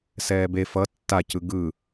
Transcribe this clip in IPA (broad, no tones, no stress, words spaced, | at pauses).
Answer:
sɛːbe fʌ tːacɯ ɡɯ